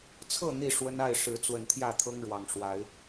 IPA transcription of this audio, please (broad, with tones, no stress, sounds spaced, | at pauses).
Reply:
t͡sʰ ɤ˥˨ n̪ i˥˨ ʂ w ə˦ n a˥˨ ɪ̯ ʂ ɻ̩˨˦ t͡s w ə˨˩ n t̪ʰ j ä˥˨ t̪ʰ ɤ˦ ŋ ɻ w ɑ˨˩ ŋ ʂ w a˨˦ ɪ̯